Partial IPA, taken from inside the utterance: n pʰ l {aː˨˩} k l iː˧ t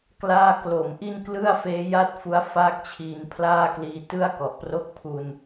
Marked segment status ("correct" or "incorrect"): incorrect